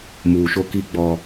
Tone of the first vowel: low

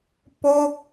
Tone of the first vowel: falling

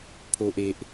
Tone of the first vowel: low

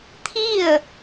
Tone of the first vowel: falling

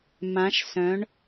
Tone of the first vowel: rising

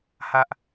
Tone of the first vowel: high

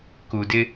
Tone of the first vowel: low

